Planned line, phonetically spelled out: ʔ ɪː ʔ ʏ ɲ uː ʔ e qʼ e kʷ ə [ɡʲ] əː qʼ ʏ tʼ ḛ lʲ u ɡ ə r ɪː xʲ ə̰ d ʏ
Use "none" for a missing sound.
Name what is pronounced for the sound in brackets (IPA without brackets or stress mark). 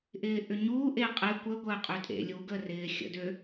ɡʷ